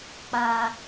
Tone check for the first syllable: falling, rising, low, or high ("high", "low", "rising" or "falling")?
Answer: low